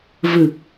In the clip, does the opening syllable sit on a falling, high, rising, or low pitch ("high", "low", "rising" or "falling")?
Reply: low